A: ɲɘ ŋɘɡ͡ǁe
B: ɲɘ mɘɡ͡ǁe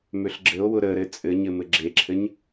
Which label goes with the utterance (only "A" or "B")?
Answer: B